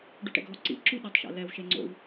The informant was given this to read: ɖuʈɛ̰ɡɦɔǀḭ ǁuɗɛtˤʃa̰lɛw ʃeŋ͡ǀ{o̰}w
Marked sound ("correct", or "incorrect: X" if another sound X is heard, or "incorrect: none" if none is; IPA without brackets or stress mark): correct